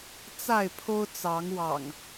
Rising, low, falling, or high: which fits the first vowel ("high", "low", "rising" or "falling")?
falling